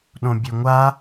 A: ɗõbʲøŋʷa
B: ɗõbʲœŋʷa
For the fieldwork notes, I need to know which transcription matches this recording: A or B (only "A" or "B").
A